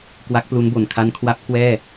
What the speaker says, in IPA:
kwa˦˥k̚plu˦˥nbo˨˩n kʰa˦˥nkʰwa˦˥p̚ kwɛː˥˩

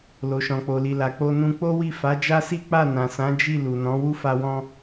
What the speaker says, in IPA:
lo˨ʃɔ̃˨k͡po˨li˨ la˨ k͡po˧nũ˧ k͡po˦wi˦˨ fa˨˦d͡ʒa˦si˦ k͡pa˦˨nã˨sã˨˦ d͡ʒi˦˨ lu˨nɔ̃˨˦ wu˦fa˧wɔ̃˧

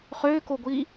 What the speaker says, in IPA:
χøːkoɡʷiː

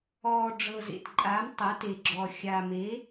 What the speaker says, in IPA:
ɔː˨˩ ɖ͡ʐɤ˨˩zḛ˨˩t ǃʼa˩˥m tˤa˩˥te˨˩ɡ͡ǁɔ˨˩ xʲa˨˩me˩˥

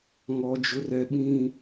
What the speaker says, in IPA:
ŋɔ˦d͡ʒʊ˦rɛ˦ ɓĩ˦

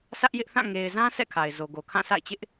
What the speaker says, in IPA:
sʰä˦ʔjɪ˦ʔθã˦˨ ŋe˨ɪ̯zã˦ sʰɛ̰˦˨kʰa˨ɪ̯zo˨ ɡo˨kʰã˦˨sʰa̰˦˨ɪ̯t͡ɕɪ˦ʔ

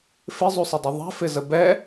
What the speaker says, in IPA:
fɪzˤusˤɪdˤʊ ðˤɛ̤fɪzə bɛ

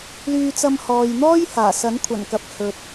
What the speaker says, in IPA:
lyː˧t͡sɐ˧m hɔː˨jn̪ɔː˥j haː˨˩ sɐ˨˥nkʷʰɐ˨˩nkɐ˨˥p̚ hɵ˨t̚

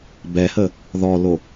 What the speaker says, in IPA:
bɛhə | ðɔlo

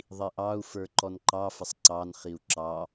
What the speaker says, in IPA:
ðˤiʔɑu̯ fə˞ǃɔnǃɑ fəsˤǀɑn χiu̯ǁɑ

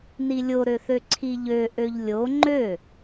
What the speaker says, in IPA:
nilʲoɾøθø ǀʰiʎø ʔøʎlʲo ŋ͡ǃø

